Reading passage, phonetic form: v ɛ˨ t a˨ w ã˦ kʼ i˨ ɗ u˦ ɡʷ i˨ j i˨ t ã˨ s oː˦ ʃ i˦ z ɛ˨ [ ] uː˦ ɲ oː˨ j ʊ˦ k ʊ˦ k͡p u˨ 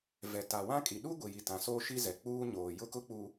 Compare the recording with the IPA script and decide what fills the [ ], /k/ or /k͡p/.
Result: k͡p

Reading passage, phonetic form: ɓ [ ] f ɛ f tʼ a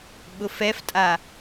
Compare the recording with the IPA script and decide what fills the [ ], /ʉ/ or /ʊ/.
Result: ʊ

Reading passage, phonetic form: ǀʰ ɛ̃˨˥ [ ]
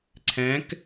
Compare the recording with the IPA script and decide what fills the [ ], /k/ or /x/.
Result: k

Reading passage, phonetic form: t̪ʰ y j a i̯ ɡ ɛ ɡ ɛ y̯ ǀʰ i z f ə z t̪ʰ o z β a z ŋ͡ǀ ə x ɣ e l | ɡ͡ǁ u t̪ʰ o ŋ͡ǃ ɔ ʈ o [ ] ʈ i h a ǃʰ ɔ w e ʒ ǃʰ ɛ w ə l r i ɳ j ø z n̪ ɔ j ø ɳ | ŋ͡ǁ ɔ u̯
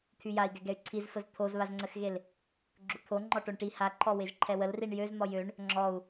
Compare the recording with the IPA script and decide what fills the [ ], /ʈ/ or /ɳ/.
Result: ɳ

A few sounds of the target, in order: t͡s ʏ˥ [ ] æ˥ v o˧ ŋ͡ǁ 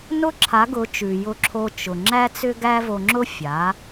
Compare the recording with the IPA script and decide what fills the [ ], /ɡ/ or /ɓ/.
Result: ɡ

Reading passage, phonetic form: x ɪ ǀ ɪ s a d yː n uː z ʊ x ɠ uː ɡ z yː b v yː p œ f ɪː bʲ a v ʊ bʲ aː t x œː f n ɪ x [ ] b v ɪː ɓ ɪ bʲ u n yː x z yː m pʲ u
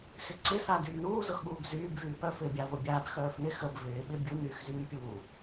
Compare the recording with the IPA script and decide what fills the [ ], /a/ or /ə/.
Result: ə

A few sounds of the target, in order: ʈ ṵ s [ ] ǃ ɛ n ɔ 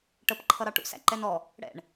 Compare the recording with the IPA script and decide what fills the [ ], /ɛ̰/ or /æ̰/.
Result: æ̰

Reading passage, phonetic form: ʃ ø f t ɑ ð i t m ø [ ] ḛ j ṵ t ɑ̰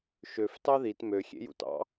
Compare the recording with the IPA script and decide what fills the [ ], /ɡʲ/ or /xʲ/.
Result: xʲ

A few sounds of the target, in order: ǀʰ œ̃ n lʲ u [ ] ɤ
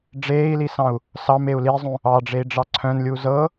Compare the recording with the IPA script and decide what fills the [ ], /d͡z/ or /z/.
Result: z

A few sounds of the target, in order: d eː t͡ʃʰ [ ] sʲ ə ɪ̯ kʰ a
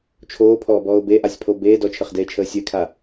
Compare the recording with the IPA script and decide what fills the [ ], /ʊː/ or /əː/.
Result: əː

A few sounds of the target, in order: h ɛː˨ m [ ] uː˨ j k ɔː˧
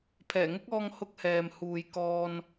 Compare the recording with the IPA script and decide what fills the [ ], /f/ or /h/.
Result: h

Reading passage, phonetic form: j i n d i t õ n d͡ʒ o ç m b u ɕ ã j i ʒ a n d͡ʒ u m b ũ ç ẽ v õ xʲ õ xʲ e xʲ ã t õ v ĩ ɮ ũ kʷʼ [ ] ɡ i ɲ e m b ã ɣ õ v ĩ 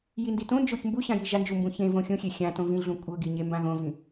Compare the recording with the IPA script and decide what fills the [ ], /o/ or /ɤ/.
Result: ɤ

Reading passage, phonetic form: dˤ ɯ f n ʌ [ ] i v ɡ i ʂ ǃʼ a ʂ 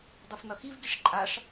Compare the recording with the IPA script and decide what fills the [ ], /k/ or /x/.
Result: x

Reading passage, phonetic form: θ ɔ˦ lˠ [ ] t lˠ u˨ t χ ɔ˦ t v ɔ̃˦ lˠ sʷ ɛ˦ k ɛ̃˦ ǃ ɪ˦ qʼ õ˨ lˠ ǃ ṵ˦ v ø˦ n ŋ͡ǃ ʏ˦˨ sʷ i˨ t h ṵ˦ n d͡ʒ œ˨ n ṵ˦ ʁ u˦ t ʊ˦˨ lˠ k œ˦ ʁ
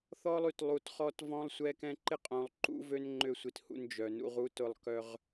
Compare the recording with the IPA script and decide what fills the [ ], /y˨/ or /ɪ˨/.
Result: y˨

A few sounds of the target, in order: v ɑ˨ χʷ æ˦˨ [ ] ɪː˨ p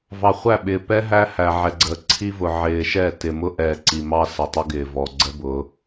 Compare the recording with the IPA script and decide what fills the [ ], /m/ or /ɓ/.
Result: ɓ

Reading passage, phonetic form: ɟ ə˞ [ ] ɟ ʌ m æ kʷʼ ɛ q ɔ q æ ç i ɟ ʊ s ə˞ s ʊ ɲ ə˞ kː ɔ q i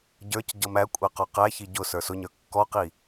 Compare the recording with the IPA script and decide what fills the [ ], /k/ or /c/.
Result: c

